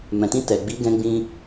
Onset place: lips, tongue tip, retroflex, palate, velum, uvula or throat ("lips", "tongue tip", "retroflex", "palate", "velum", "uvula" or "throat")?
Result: lips